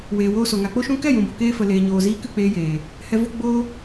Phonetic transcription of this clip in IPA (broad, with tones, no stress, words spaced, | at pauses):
weː˨woː˧so˨ ŋa˨k͡po˦ʃũ˦ kɛ˦˨jũ˨bo˨keː˧ fə˨ leː˨ɲoː˨ziː˧ kɨ˦˨k͡peː˧jeː˨ | hɛ˧vo˦ ɡ͡boː˦